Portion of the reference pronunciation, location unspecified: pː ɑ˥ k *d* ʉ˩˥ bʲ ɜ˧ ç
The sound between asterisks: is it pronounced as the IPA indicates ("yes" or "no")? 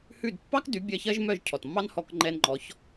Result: yes